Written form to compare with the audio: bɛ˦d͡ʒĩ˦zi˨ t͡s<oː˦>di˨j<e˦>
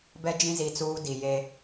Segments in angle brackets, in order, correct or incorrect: incorrect: uː˦, correct

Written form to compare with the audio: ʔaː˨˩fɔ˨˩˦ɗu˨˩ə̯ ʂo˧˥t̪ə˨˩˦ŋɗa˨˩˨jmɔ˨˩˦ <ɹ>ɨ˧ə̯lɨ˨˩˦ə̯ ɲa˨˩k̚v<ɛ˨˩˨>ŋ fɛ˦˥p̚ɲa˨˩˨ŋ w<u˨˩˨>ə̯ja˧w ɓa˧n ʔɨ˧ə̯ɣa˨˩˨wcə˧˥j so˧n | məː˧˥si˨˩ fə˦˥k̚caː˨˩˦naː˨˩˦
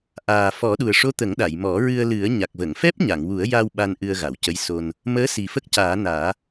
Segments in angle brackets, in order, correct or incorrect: correct, incorrect: ə˨˩˨, incorrect: u˨˩˦

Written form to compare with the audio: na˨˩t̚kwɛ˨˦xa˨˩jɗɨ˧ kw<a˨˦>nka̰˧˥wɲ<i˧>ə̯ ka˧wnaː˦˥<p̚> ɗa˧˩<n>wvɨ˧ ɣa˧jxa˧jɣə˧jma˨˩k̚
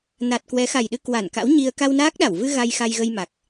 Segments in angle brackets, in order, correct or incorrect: incorrect: a˧˩, correct, incorrect: k̚, incorrect: none

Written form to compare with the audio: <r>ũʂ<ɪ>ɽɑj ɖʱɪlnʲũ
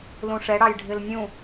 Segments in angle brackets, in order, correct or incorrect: incorrect: l, incorrect: ɛ

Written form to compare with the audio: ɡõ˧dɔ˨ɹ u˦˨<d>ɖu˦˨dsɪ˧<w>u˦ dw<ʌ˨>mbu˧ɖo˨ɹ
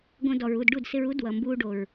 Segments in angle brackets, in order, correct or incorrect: correct, incorrect: ɹ, correct

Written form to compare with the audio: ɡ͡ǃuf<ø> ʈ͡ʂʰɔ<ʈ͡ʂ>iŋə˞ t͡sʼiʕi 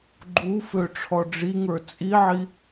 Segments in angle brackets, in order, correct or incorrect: correct, incorrect: ɖ͡ʐ

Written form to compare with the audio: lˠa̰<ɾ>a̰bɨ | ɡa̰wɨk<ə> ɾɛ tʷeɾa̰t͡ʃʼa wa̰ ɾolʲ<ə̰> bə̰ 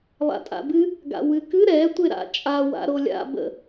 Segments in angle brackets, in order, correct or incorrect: incorrect: tʼ, incorrect: ɨ, incorrect: a̰

